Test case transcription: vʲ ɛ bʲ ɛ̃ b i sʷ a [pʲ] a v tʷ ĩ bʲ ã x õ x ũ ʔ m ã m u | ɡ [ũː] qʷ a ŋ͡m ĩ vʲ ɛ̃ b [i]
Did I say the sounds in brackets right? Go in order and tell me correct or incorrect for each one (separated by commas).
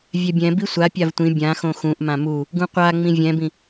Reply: correct, incorrect, incorrect